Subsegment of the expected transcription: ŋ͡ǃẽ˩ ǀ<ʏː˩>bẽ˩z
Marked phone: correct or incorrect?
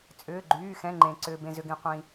correct